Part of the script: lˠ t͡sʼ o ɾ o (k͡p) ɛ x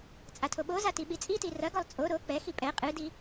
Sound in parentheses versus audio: correct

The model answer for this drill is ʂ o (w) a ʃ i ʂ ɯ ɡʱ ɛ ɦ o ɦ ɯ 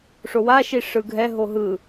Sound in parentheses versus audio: correct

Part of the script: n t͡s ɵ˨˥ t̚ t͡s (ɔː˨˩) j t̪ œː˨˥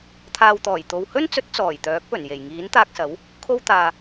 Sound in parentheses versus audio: correct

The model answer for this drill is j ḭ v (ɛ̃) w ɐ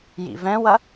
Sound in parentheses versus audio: correct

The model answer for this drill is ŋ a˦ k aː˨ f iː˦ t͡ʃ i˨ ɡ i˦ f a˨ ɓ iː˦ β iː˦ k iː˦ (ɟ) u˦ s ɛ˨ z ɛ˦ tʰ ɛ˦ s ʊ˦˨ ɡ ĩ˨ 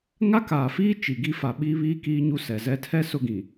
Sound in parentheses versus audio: incorrect: ɲ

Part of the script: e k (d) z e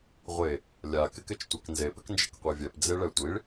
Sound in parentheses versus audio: incorrect: n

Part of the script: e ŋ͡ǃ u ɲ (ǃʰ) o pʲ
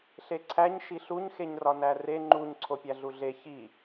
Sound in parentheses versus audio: incorrect: ǀʰ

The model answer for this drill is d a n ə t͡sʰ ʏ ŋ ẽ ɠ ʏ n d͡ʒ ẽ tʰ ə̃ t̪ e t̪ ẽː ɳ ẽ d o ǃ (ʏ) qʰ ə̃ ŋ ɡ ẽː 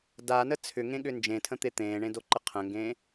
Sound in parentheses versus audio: incorrect: ə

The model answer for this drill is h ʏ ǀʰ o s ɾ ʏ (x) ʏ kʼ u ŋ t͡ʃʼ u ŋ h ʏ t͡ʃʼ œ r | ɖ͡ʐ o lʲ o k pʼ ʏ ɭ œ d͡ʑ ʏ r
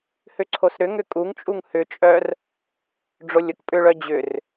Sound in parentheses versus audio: incorrect: ŋ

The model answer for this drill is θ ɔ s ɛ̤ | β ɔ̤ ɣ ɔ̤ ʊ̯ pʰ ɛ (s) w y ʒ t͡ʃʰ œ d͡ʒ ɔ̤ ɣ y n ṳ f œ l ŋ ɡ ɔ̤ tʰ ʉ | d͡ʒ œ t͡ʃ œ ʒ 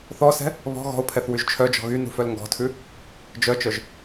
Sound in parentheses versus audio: incorrect: θ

